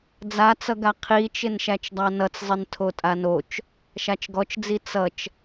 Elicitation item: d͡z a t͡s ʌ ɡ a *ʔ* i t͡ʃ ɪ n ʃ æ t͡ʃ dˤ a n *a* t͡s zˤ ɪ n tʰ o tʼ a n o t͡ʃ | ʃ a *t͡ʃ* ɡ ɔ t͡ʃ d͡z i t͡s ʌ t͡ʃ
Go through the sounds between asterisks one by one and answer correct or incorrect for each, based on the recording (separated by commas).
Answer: incorrect, incorrect, correct